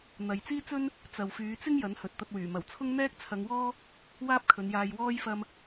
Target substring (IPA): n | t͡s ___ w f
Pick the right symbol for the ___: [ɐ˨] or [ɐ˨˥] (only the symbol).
ɐ˨